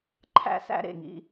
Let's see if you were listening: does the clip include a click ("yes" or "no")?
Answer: yes